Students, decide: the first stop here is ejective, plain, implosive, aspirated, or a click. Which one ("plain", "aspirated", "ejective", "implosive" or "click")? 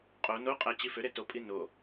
ejective